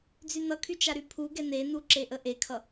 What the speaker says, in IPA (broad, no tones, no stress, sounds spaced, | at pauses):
d͡z y n ʌ kʰ y t͡ʃ a ɾ y pʰ u ɡ ɛ n e n u ǁ e ʔ ə ʔ e kʰ ʌ